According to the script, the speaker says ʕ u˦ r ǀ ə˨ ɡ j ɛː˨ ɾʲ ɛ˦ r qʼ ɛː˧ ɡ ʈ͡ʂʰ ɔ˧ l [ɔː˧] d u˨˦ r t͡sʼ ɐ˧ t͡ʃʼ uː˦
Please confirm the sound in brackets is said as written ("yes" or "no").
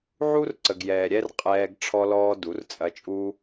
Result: yes